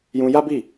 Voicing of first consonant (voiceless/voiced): voiced